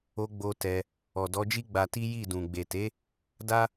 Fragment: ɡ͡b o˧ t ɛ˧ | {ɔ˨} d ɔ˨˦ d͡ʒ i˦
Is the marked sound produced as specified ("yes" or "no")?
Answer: yes